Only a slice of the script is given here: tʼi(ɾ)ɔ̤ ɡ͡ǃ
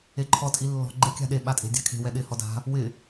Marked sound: incorrect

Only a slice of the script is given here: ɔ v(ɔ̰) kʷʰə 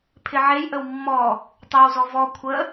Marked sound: incorrect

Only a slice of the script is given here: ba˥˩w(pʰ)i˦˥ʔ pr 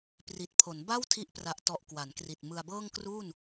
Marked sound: incorrect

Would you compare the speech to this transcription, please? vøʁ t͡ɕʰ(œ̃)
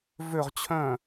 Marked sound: correct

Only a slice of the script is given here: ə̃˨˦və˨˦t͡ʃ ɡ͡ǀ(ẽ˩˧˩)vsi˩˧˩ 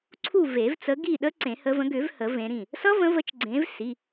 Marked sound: incorrect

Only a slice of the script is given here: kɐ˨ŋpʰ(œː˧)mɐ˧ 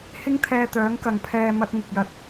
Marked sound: incorrect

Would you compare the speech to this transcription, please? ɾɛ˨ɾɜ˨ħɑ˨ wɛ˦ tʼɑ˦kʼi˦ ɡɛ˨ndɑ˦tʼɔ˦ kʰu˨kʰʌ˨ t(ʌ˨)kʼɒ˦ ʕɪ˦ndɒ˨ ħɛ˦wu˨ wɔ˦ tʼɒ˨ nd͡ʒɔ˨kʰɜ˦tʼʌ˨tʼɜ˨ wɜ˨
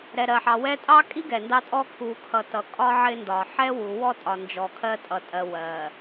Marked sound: correct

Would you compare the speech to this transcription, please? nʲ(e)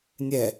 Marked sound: incorrect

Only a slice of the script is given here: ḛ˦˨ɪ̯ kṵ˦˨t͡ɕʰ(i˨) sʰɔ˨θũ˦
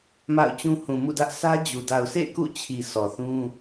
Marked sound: correct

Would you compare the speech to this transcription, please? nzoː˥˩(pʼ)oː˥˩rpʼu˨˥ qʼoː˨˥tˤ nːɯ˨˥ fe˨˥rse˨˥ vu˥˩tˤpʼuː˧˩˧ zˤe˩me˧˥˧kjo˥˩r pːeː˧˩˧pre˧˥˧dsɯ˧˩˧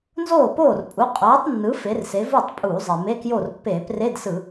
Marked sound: incorrect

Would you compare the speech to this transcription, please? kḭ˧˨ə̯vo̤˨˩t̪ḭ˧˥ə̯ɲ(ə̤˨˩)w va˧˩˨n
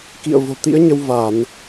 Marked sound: incorrect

